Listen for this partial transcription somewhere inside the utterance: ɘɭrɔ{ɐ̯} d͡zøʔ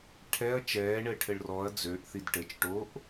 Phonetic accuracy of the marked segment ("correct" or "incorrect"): correct